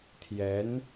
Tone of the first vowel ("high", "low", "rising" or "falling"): rising